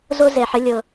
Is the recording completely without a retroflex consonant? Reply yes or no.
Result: yes